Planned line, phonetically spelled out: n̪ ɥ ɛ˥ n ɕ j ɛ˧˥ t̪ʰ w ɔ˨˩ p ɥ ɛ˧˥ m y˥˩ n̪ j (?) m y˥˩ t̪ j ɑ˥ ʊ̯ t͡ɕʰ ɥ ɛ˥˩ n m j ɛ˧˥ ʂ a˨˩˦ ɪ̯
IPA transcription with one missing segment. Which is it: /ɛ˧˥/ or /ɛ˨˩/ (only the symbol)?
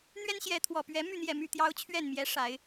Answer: ɛ˨˩